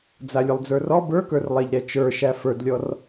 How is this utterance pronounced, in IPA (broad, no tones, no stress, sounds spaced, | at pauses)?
d͡z a lʲ ʊ lˠ d͡z ə˞ r ɔ b ə˞ k ə˞ r lˠ ɛ ʎ ɾ ɛ t͡ʃ ə˞ ʃ æ f ə˞ d lʲ ɔ r